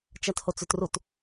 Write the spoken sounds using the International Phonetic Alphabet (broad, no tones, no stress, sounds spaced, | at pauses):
t͡ʃ a t h o t͡s ʉ t r u t